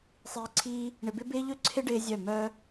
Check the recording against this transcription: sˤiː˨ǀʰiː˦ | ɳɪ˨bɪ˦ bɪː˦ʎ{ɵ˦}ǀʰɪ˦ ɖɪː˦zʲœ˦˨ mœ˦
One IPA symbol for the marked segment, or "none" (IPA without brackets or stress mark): ɵ˦